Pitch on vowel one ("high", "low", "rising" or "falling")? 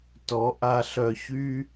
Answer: rising